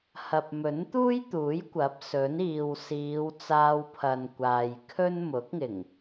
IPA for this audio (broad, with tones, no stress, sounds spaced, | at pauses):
h ɐ˨ p̚ m ɵ˨˥ n t̪ uː˥ j t̪ uː˨˥ j kʷ ɐ˨˥ p̚ s ɵ˨˥ n iː˨ w s iː˨˧ w t͡s aː˧ w pʰ ɐ˨ n kʷ aː˨ j kʰ ɵ˥ n m ʊ˨˥ k̚ ŋ ɪ˨˩ ŋ